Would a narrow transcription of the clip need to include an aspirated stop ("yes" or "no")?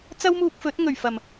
no